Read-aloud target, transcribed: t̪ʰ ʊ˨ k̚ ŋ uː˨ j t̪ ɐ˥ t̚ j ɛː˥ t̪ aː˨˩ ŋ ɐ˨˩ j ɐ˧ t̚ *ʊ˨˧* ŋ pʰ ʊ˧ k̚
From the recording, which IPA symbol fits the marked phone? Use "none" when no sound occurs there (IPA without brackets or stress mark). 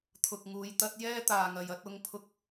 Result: ʊ˨˧